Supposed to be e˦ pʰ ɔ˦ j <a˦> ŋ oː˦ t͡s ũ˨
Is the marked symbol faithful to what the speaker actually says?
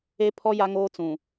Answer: yes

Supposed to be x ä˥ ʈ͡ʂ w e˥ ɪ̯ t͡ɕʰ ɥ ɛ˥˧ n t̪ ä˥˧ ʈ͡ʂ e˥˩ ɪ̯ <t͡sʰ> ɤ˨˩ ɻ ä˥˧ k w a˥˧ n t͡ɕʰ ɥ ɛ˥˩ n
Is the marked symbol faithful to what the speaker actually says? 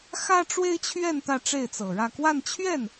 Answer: no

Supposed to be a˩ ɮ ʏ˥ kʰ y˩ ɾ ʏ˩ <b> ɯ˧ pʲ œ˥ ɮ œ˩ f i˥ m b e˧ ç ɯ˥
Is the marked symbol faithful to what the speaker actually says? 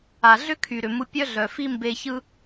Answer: no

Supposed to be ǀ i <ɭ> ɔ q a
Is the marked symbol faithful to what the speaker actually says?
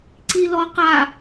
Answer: no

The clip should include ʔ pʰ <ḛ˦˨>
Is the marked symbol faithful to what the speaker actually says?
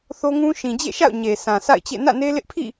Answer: no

